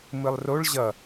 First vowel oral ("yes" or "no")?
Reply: yes